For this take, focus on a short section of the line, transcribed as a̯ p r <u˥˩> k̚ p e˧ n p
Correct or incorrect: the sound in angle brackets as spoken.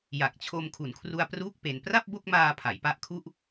incorrect: uː˥˩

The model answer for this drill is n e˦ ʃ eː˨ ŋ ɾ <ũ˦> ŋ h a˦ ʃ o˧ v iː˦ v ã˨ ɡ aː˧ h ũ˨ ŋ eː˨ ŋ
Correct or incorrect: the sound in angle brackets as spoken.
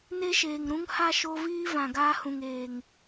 correct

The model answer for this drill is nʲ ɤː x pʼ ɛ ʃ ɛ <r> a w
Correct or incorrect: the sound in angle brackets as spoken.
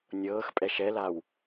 incorrect: l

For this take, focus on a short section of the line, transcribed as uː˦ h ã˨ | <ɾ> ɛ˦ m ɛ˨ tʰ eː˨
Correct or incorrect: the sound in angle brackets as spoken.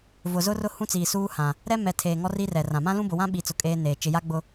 correct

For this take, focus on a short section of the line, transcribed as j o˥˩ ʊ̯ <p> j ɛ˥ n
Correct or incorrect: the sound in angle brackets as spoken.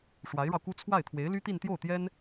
incorrect: t̪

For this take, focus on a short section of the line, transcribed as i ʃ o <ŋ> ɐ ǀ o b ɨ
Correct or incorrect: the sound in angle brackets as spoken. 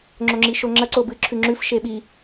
incorrect: ŋ͡ǁ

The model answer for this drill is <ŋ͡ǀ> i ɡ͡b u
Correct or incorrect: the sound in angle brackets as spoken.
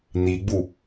incorrect: n̪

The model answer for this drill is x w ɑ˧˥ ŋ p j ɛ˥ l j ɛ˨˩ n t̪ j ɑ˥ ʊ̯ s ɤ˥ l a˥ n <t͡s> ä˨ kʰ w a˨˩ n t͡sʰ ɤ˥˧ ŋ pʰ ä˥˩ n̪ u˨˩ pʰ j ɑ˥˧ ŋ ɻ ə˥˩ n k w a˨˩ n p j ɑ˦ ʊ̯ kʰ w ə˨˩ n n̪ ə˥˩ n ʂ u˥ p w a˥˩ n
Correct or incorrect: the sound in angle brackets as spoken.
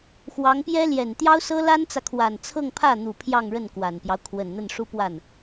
correct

